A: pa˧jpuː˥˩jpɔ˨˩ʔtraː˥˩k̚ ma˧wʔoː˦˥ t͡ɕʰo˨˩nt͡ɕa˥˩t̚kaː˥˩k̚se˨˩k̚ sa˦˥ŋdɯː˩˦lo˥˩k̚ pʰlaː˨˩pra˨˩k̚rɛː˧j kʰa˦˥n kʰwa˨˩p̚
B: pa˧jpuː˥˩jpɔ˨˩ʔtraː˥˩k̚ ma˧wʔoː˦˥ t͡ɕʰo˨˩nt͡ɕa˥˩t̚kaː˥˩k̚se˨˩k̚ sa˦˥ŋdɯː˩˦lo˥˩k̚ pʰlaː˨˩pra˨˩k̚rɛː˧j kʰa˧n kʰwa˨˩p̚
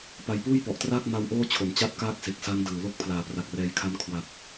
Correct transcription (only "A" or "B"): A